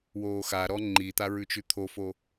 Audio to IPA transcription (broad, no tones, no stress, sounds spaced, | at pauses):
w oː x a ɾ ɔ ŋ͡ǃ i t̪ a ɹ ʉ t͡ʃ ʉ t̪ʰ o f o